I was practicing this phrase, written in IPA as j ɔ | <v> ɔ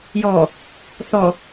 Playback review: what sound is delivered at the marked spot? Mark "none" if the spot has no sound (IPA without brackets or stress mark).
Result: θ